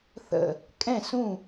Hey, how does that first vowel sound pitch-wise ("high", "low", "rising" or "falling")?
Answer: falling